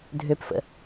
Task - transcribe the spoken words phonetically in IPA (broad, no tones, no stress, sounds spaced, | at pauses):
dʱ ø p f ə̰